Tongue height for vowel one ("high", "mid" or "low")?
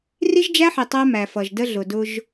high